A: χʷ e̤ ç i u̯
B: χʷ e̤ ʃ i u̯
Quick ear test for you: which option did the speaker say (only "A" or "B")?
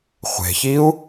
A